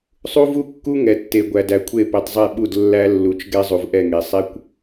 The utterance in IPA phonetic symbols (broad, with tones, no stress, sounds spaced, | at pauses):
sˤ u˦ v u˦ kː u˦ ŋ ɛ˨ tː e˨ ɡʷ æ˨ d æ˨ kʷʰ e˦˨ p e˨ tˤ zˤ e˦˨ ɓ u˦˨ d lː æ˦ lː u˨ t͡ʃ ɡ ɛ˦ zˤ u˨ v ʔ ɛ˦˨ ŋ e˨ sˤ ɛ˦ kʷ